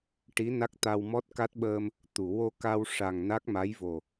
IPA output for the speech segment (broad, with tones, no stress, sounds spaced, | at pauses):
ʈ i˧˥ n a˦˥ k̚ t̪ a˧ w m ɔ˦˥ t̚ k a˦˥ t̚ ɓ əː˧ m | t̪ u˨˩˨ w o˧ k a˧ w ʂ a˨˩ ŋ n a˦˥ k̚ m a˧˥ j v o˨˩